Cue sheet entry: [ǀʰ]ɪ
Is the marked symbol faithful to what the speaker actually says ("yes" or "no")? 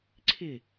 yes